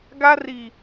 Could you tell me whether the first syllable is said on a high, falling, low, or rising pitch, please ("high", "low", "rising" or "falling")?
high